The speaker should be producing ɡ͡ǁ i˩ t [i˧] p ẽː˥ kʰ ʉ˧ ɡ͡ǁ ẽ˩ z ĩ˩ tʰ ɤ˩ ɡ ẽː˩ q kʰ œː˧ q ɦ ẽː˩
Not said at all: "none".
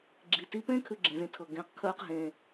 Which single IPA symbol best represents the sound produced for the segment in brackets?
i˧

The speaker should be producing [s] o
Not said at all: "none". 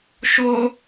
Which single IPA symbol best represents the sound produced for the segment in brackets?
ʃ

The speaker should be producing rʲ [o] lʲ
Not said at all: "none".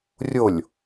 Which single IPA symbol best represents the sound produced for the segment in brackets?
o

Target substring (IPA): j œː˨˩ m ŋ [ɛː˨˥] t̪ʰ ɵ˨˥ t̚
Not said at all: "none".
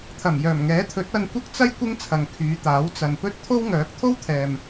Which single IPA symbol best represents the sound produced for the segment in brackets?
ɛː˨˥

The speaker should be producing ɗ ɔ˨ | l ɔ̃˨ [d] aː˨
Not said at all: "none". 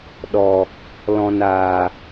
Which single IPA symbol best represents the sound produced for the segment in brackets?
n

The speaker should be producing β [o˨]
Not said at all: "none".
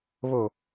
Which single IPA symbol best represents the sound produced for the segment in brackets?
o˨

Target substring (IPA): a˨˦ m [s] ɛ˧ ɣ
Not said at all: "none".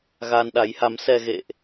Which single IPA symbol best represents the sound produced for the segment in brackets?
s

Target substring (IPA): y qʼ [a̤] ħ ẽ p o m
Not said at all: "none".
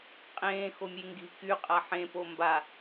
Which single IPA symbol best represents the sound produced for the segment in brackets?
a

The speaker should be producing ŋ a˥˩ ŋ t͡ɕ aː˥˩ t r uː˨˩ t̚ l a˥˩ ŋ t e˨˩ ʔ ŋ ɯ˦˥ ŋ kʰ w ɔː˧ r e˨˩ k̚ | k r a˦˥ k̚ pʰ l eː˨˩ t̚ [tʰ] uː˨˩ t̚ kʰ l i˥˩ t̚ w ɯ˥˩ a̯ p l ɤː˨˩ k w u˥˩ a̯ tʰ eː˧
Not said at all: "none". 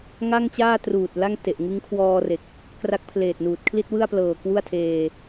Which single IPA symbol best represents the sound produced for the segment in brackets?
n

